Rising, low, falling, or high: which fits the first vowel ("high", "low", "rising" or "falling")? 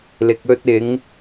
low